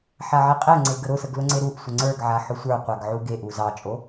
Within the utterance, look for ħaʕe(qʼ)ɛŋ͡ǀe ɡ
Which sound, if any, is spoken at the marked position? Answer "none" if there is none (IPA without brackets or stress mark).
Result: qʼ